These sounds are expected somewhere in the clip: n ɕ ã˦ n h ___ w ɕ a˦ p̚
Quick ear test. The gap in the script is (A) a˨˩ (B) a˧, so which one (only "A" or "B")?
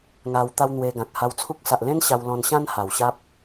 A